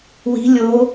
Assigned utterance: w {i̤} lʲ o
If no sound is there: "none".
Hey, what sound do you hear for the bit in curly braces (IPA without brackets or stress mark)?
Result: i̤